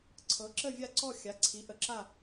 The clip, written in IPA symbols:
ǀʰɤ˨˥ǁə˥˧vʲa˥˧ǀɔ˥˧ xʲa˨˥ǀʰi˨˥ ʔə˨˥ǁa˥˧

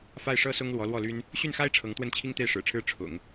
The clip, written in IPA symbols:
fa˥˩ɪ̯ʂɤ˥sʊ˥ŋ lwɔ˧˥lwɔ˥˩ly˥n | ɕy˥˩nxa˥ɪ̯ ʈ͡ʂʰɤ˧˥ŋt̪wə˥˩nt͡ɕʰi˥ŋt̪e˥˩ɪ̯ ʂɻ̩˨˩ʈ͡ʂʰɻ̩˥ ʈ͡ʂʰʊ̰˨˩˦ŋ

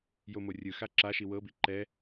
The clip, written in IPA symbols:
jomorʲɯxa ǁaʃi wɤbi ǃɛ

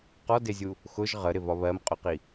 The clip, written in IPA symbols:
qɔdɪzʲu | xʊʒ ʁəɾɪvɒ βɜmqʼʊqi

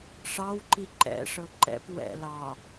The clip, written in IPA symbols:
ʂɑwǃi ǃɛ̰ʂɤ ǃɛ̰p wɛ̰ lɑ

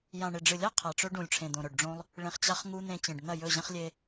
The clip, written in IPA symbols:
jã˨ɳe˨ɖ͡ʐɨ˨lʲa˦ qʰa˨ʈ͡ʂɵ˦ ɖũ˨lʲʈ͡ʂʰẽ˨d̪õ˨ ɾɵ˨ɖɖ͡ʐõ˦lˠ | ɭẽ˧χt͡ɕa˦χŋu˦ n̪ẽ˧t͡ɕẽ˨ɖ n̪ɐ˦˨jɵ˦˨ʑɐ̃˦χ lʲe˦

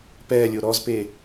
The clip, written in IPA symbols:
pɛːlʲo ɾɔzpe

